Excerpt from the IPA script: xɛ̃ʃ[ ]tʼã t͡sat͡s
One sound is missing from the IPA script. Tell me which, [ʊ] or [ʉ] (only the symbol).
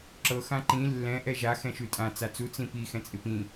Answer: ʉ